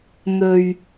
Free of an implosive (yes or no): yes